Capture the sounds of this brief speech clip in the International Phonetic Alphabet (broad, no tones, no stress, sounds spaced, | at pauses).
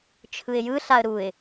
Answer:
t͡ʃʰ ɯ ɪ̯ j ɯ ɬ a ə̯ ɾ u ɪ̯